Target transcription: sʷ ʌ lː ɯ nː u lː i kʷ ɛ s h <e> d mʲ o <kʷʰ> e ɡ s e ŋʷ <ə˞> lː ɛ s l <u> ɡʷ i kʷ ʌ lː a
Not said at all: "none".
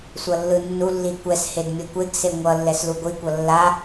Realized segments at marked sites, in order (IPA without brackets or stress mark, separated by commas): e, kʷ, ʌ, u